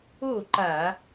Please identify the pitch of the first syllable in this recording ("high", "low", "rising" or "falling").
falling